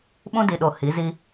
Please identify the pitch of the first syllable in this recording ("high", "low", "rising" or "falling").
high